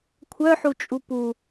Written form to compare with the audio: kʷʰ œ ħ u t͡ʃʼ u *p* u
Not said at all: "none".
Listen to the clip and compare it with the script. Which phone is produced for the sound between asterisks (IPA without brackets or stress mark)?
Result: p